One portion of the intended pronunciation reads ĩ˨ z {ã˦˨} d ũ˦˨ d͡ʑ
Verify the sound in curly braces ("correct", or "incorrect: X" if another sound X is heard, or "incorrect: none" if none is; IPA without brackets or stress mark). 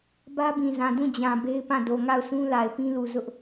incorrect: ã˨